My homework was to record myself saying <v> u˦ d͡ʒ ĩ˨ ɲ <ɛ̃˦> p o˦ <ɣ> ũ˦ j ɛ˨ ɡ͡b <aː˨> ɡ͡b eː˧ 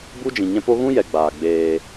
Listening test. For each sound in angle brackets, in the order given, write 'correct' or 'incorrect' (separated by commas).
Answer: incorrect, correct, correct, correct